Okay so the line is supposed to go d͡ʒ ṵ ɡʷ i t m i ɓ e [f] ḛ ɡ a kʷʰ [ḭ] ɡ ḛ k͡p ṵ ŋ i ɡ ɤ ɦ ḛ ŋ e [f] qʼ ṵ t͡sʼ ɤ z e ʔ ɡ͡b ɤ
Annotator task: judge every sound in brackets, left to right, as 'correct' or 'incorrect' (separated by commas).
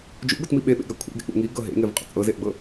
incorrect, incorrect, incorrect